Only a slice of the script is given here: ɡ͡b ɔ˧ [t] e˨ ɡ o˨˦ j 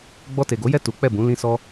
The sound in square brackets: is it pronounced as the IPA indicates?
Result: yes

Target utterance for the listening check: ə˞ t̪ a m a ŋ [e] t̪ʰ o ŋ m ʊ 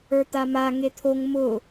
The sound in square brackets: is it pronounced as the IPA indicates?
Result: yes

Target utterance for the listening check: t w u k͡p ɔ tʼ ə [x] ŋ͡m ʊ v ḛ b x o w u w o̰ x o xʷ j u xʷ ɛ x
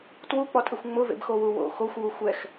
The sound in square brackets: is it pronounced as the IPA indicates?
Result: no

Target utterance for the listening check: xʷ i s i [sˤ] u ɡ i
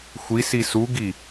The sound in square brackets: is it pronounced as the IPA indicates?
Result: no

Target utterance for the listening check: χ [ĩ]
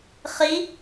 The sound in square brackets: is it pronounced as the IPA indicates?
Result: no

